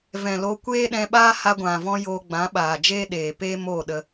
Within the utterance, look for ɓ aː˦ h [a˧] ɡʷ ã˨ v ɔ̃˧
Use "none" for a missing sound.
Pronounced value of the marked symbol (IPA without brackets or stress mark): a˧